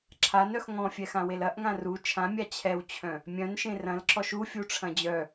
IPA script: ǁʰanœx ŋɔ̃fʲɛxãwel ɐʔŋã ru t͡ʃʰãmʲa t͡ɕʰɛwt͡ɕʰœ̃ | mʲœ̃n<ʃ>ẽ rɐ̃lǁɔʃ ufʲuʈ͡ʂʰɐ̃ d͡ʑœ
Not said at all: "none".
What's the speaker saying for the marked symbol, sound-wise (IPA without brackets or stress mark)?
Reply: ʃ